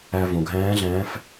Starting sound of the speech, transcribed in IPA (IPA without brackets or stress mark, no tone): æ